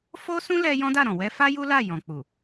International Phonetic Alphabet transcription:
f o˦ s ũ˦ l ɛ˧ j ɔ̃˦ d a˦˨ ɾ ɔ̃˨ w ɛ˧ f a˦ j u˦ l a˦˨ j ɔ̃˨ k͡p u˨

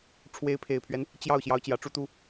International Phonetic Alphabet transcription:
ʈ͡ʂʰ w e˧˥ ɪ̯ pʰ e˨˩ ɪ̯ pʰ ɥ ɛ˦ n | t͡ɕ j ɑ˥˩ ʊ̯ ɕ j ɑ˧˥ ʊ̯ t͡ɕ j ä˨˩ ʈ͡ʂ u˥ t̪ u˥

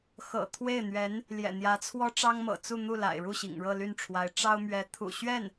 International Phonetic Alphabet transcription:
x ɤ̰˨˩ t̪ʰ w e˥˩ ɪ̯ n̪ ɥ ɛ˧˥ n | l j ɛ̰˨˩ n̪ j ä˧˥ t͡sʰ w ɔ˥ ʈ͡ʂ ɑ˥ ŋ m ɤ̰˨˩ t͡s u˥˧ n̪ u˥˩ l a̰˨˩ ɪ̯ ɻ u˥˩ ɕ ḭ˨˩ ŋ ɻ ɤ˥˧ l y˥˩ n ʈ͡ʂʰ w a˧˥ ɪ̯ ʈ͡ʂ ɑ˥ ʊ̯ m ɥ ɛ˧˥ t̪ʰ ṵ˨˩ ɕ ɥ ɛ˥˩ n

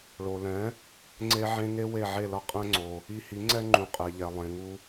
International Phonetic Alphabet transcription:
ɭ o˩ l ɛ̃˩˥ | ŋ͡ǀ e˥ ʕ ẽ˥ ŋ e˥ w e˥˩ ʕ e˥˩ l ʌ˥ qʼ ɛ̃˥ ŋ͡ǀ o˩ | i˧ h i˩˥ ŋ͡ǀ ɛ˥ ŋ͡ǃ ũ˩ qʼ e˩ ʎ ɛ˩ lˠ ẽ˩ ŋ u˧

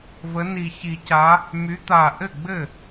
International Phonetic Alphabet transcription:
v ə˨˦ n i˨˩ ç i˨˩˦ c a˨˦ | m y˨˦ t̪ a˨˩ ʔ ɘ˥˩ ɡ͡b ɘ˥˩

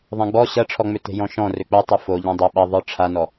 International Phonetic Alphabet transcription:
ðˤ ã ɡ͡b ɔ ɕ ɐ ʈ͡ʂʰ ɔ ŋ͡m ʏ t e̤ j ɔ̃ ʃ ɔ̃ r ʏ k͡p o tˤ ɯ f o ʎ ã dˤ ɐ ɓ ɐ ðˤ ɯ ʈ͡ʂʰ a n ɔ

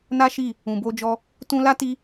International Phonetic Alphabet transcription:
n a˦ ʃ i˦˨ | ũ˨ b o˧ d͡ʒ ɔ˧ | t ũ˧ l a˦ t i˦

